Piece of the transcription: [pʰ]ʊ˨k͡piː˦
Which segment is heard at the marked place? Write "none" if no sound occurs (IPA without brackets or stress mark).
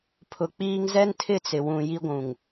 pʰ